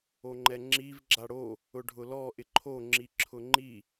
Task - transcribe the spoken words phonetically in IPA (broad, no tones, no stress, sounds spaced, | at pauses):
o ŋ͡ǃ ɛ ŋ͡ǁ i v ɡ͡ǁ a ɽ o | ʊ ɖʱ ʊ l ɔ ʔ ɪ ǃʰ o ŋ͡ǁ i ǁʰ ʊ ŋ͡ǃ i